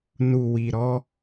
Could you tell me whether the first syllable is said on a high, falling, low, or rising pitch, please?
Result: low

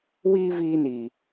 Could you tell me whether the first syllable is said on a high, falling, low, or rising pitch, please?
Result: high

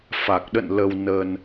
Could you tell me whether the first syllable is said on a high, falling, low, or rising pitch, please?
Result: low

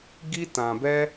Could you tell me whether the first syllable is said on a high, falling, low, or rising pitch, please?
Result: high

